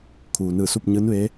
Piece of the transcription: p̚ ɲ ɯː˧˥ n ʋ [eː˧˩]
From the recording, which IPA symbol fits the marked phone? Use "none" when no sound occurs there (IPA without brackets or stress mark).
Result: eː˧˥